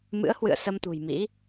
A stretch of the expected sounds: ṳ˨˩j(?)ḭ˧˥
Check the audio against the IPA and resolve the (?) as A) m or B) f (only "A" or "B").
A